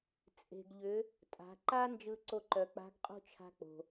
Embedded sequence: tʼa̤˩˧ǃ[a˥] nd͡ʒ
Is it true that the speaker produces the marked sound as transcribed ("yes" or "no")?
yes